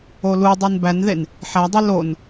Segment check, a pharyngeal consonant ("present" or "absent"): present